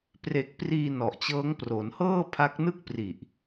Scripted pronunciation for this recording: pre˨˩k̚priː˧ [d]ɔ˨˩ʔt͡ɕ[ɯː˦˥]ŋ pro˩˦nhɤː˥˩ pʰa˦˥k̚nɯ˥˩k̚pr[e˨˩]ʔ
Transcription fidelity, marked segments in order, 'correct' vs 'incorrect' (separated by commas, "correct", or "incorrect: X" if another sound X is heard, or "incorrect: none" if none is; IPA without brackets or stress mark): incorrect: n, incorrect: ɤː˦˥, incorrect: i˨˩